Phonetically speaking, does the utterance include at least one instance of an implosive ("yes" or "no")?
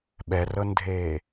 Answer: yes